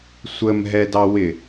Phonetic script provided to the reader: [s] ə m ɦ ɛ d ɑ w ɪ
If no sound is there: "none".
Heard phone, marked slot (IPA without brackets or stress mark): sʷ